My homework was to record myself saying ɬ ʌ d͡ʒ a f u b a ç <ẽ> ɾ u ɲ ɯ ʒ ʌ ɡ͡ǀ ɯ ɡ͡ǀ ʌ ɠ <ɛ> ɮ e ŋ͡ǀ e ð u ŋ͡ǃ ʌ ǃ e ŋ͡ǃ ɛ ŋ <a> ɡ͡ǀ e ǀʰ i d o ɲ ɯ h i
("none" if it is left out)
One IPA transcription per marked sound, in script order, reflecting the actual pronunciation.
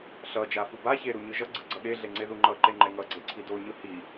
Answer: e, e, ʌ

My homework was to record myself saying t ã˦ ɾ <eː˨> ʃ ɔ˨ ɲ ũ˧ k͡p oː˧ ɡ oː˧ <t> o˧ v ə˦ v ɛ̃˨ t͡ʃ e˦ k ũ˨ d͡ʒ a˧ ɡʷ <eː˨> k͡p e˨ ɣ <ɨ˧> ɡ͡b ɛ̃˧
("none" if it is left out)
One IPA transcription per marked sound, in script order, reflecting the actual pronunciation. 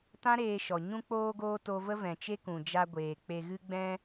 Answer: eː˧, t, eː˨, ɨ˧

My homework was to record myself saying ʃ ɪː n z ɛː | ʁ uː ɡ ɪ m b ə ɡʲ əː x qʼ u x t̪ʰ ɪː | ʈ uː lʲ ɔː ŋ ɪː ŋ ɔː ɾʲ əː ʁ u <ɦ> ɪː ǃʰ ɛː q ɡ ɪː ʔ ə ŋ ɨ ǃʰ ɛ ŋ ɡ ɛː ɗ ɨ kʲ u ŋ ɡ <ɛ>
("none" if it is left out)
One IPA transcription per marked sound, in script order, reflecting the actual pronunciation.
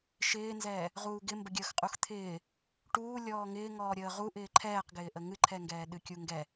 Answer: ʔ, ɛ

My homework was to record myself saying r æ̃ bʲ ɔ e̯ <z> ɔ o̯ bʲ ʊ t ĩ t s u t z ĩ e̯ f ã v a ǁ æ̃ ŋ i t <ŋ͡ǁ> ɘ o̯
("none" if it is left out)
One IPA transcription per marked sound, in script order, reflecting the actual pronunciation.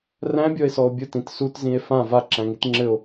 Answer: s, ŋ͡ǁ

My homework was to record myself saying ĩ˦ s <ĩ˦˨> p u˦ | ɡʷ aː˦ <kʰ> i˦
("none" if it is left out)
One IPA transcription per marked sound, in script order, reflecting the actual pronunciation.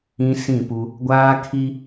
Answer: ĩ˦˨, kʰ

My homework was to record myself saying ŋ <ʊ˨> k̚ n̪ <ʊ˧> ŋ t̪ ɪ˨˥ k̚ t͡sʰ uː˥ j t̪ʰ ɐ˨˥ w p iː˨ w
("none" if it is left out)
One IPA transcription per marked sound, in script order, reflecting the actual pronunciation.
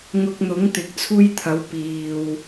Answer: ʊ˧, ʊ˨˥

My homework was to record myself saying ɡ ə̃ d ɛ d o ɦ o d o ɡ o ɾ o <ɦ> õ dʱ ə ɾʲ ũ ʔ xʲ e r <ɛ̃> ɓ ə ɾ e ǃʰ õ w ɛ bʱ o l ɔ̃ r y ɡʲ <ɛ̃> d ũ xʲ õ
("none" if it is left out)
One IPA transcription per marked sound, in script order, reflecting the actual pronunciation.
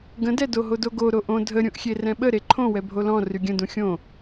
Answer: ʔ, ɛ̃, ə̃

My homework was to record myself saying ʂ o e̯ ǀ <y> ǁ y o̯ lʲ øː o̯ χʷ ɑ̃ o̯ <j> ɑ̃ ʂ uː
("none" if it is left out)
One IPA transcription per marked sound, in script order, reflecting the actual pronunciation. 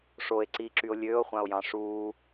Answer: i, j

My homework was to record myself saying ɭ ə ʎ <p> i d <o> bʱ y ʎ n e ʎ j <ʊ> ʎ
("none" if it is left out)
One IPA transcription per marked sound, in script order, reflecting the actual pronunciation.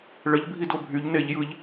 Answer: bʱ, o, ɯ

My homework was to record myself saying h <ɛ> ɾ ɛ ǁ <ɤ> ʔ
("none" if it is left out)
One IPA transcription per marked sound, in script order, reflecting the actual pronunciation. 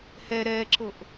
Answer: ɛ, ɤ

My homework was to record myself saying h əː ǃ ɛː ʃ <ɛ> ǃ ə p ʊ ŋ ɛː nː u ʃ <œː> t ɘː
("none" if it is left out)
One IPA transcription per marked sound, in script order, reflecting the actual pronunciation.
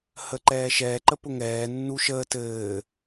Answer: ɛː, əː

